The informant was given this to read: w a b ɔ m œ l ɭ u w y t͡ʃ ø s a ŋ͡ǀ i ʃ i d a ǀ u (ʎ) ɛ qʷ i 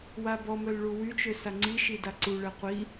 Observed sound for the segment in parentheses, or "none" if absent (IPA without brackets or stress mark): ɭ